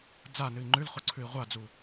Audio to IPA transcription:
d͡z a n ɨ i̯ ŋ͡ǃ ʉ l χ o ǀʰ ʉ i̯ ʁʷ a d͡z u

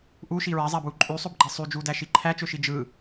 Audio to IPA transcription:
ʔ u ʃ i ɹ æ zˤ æ b w u ǃʼ y sˤ ø b ɡ͡ǃ e sˤ y d͡ʒ u d æ ʃ i ǃʰ æ t͡ʃ ø ʃ i d͡ʒ ɯ

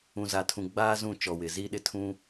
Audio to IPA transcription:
ũ˨ z a˨ tʰ ũ˨ ɡ͡b aː˦ z ũ˦˨ t͡ʃ ɔ˨ w ɪ˨ z i˦ ɗ ɪ˦ tʰ ũ˦

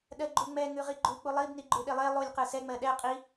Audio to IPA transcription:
ɗ ɜ ɡ͡ǃ u ŋ͡m ɛ ŋ ʉ ʁ i ɡ͡ǃ u k͡p u lˠ i b n i ɡ͡ǃ ʉ ɗ e lˠ e lˠ u lʲ q ɯ s ɛ ŋ͡m ɜ ɗ ɛ qʼ i

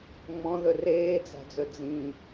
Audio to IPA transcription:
ŋ͡m ɔ̃ ð ɵ r eː d͡z a̤ d͡z ɵ d͡z ĩ

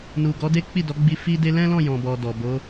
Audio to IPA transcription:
n u˨ ɡ ɔ˨˦ d e˦ k͡p i˦˨ d ɔ˨˦ ɡ͡b i˧ f i˦ d e˦ l ɛ̃˦ l ɔ̃˦˨ j ɔ̃˨ b ɔ˨ d ɔ˨ b o˨˦

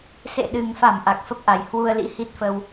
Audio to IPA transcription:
s ḛ˧˨ ɗ ɨ˨˩ ŋ f a˧˩ m ʔ a˨˩ k̚ f ə˦˥ p̚ ʔ a˨˩ j h w u˧ ə̯ l ḭ˧˥ h i˦˥ t̚ f ə˧ w

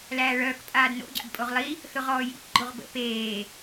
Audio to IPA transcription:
l æː ɭ œː k pʼ aː d n o̰ ɟ a̰ b pʼ o ʁ lˠ i | θ ʊ ʁ ɔː j ḭ k ɡ͡ǃ o ʁ b ə̰ p eː

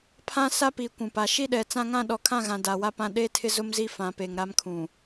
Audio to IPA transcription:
pʰ ã˦ s a˦ p i˨ kʷ ũ˨ p a˨ ʃ i˦ ɗ ɛ˨ t͡s ã˦ ŋ ã˦ ɗ ɔ˨ kʰ ã˦˨ ɣ ã˨ d a˨ w a˦ p ã˦ ɗ e˦ tʰ ɪ˦ z ʊ˦ m z i˦ f ã˨ p e˨ ŋ ɾ a˦ m kʰ ũ˨

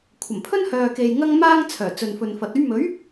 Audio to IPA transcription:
kʷʰ ɐ˨˩ m pʰ ɵ˥ n h œː˨ k e˨ j ŋ ɐ˧ ŋ m aː˧ ŋ t͡sʰ œː˨˩ t͡s ɵ˨ n f ɵ˨ n f ɐ˨ t̚ ɵ˥ ɥ m ɵ˨˥ ɥ

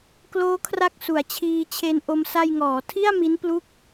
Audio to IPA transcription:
k l oː˦˥ kʰ r a˦˥ k̚ s u˩˦ a̯ t͡ɕʰ iː˧ t͡ɕʰ e˦˥ n ʔ o˧ m s a˧ j ŋ ɔː˩˦ tʰ i˥˩ a̯ m i˦˥ n p l u˥˩ k̚

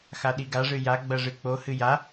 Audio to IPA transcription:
x a ɗ i ɡ a ʐ ɨ j a ɡ͡b ɐ ʐ ɨ k͡p o h ɨ j a

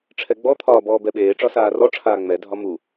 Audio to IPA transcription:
ʈ͡ʂʰ ɛ ɡ͡b ɔ t̪ʰ ɒː b ɔː b ɛ ɓ eː ʈ͡ʂ ɒ s aː r ɔ ʈ͡ʂʰ aː ŋ͡m ɛ dʱ ɒ m u

